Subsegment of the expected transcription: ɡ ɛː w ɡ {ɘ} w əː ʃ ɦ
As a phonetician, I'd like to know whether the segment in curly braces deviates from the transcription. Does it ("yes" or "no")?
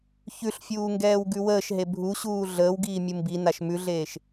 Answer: yes